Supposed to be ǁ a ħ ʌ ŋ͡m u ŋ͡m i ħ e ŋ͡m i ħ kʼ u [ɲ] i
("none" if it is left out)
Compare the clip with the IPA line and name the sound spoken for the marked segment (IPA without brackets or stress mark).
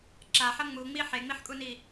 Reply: n